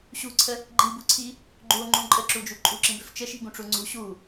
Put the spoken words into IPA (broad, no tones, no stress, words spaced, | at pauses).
ɕṳǀʰə | ɡ͡ǃibuǀʰi | ɡ͡ǃuo̯ŋ͡ǃũ ǃʼəǁud͡ʒu ǃʼuǁĩbøf t͡ʃəʃi̤ɡũʈ͡ʂu ŋ͡ǀṳ ɕu